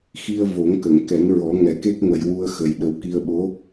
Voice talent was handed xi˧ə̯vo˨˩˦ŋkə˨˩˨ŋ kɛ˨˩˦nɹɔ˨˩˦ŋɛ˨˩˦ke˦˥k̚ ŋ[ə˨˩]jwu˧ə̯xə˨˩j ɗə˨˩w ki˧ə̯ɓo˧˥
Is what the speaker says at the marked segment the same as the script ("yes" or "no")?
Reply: yes